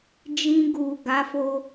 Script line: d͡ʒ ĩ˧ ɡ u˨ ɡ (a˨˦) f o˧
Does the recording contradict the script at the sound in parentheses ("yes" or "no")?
no